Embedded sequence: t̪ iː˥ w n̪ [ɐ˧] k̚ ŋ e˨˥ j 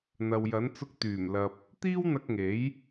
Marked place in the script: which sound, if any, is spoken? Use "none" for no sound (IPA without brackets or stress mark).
ɐ˧